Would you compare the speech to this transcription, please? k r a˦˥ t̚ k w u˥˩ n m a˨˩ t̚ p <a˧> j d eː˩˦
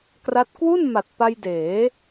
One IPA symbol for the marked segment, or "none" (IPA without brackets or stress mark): a˧